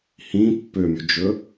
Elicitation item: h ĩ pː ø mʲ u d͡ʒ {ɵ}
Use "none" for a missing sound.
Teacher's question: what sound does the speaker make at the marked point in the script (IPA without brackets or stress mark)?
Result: ɵ